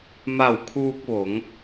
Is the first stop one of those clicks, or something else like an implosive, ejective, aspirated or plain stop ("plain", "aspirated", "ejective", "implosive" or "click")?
aspirated